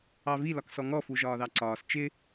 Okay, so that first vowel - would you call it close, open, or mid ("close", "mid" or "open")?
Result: open